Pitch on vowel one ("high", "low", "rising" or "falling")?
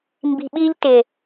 low